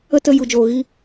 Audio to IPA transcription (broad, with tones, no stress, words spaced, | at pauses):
ə˦tə˧ ju˨d͡ʒoː˨ɣi˧